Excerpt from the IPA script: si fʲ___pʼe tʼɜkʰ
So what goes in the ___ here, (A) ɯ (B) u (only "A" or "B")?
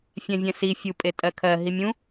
B